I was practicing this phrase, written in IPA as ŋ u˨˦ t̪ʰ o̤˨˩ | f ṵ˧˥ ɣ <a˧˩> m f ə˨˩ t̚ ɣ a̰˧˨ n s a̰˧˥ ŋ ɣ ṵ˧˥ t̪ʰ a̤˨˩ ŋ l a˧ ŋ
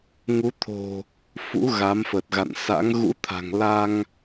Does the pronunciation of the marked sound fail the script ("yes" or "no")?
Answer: yes